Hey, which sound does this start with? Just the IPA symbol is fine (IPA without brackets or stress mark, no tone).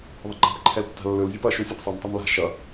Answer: ðˤ